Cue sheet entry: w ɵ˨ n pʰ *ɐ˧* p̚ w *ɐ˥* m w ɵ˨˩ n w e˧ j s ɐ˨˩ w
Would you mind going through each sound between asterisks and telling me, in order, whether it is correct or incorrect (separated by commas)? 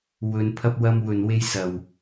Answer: correct, incorrect